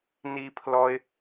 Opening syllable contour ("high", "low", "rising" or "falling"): high